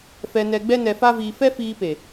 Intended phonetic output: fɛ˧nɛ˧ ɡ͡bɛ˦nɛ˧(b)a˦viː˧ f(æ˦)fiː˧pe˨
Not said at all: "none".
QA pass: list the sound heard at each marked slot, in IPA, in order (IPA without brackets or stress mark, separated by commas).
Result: f, ɛ˦